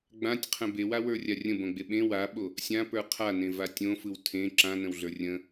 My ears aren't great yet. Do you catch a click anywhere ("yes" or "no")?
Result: yes